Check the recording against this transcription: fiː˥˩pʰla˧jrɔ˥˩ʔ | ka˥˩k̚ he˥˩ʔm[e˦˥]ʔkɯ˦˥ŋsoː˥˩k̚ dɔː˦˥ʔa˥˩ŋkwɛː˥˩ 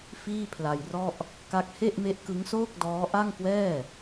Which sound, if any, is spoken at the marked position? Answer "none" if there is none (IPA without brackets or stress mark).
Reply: e˦˥